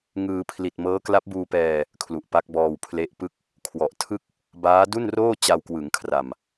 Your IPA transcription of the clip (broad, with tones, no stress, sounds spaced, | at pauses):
ŋ ɯː˧ pʰ l i˨˩ t̚ m ɤː˦˥ k l a˦˥ p̚ b uː˧ p ɛː˧ | kʰ l u˨˩ ʔ p a˦˥ k̚ b ɔː˧ w pʰ l e˦˥ ʔ p ɯ˥˩ k̚ | kʰ w ɔ˨˩ ʔ tʰ ɯ˥˩ k̚ | b aː˦˥ d u˥˩ n r oː˥˩ t͡ɕ a˧ w k w ɯ˩˦ ŋ kʰ r a˨˩ m